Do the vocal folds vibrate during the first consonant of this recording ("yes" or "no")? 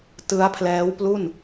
no